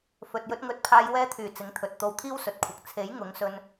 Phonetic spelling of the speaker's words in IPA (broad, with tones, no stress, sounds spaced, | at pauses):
f ɵ˨ t̚ j ɵ˧ t̚ ŋ ɵ˨˥ t̚ pʰ aː˧ j w ɛː˧ t̪ʰ yː˨˩ t͡s ɪ˨˥ ŋ t̪ʰ ɵ˨ t̚ t̪ o˧ w t̪ʰ iː˥ w s ɵ˨ t̚ kʷʰ ɐ˨ k̚ t͡sʰ e˨˥ j ŋ ʊ˨˥ ŋ s ɵ˧ n